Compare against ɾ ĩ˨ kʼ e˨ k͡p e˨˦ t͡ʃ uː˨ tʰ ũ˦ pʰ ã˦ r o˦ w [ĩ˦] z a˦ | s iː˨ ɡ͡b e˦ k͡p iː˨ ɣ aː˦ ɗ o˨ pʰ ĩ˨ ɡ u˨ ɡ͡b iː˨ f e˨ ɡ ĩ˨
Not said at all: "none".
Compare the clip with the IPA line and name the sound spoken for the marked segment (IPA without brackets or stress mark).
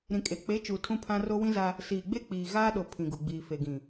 ĩ˦